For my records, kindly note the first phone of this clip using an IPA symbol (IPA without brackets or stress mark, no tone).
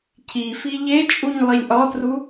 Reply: cʰ